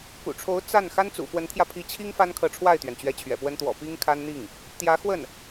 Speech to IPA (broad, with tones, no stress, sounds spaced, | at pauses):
k ṵ˨˩ ʈ͡ʂʰ o˧˥ ʊ̯ t͡s a˥˩ n x a˥ n t͡s ṵ˨˩ f w ə˧˥ n t̪ʰ j ä˧ pʰ i˧˥ t͡ɕʰ i˥ ŋ f a˥ n kʰ ɤ˧˥ ʈ͡ʂʰ w a˥˩ ɪ̯ t̪ ɥ ɛ˩ n t͡ɕ ɥ ɛ˧˥ t͡ɕʰ ɥ ɛ̰˨˩ p w ə˥ n t̪ w ɔ̰˨˩ p i˥ ŋ kʰ a˥ n n̪ i˥˩ ŋ | t̪ j ä˧˥ x w ə˥˩ n